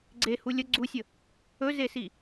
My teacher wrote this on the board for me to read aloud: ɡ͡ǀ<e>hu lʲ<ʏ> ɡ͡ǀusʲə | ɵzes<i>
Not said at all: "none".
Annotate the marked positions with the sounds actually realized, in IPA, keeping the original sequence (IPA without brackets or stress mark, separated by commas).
e, ə, i